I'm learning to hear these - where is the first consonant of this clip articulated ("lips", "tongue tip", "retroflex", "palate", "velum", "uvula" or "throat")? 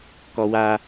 velum